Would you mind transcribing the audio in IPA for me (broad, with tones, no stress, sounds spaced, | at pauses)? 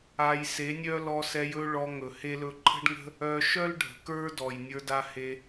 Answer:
a˧ j s e˨˦ nʲ œ˦ l ɔ˧ s ɛ˧ j ɵ˦ ɭ ɔ˧ ŋ ɵ˨ h e˦ l ɵ˧ ǃʰ ə̤˦ ɖ ŋ ə̤˦ | œ˧ ʃ œ˦ l ɖʱ ə̤˨ k ə˞˦ d ɔ˨ j nʲ ə˞˧ d a˧ h e˧